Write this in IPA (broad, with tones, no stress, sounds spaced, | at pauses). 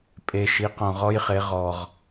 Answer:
pʼ e˩ ʃ i˩˧ q õ˩ ʁ ɔ˧ j χ e˩˧ ʁ ɔ˩ ʁ